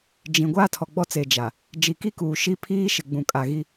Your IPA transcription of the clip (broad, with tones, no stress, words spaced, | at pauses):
d͡ʒĩ˨ ɡʷaː˦tʰɔ˨ɡ͡bɔ˦t͡se˨ d͡ʒa˨ | d͡ʒi˨ki˦kuː˨ ʃi˦ pʰiː˦ʃɪ˨ɡ͡bũ˨ kʼa˨ ɣi˦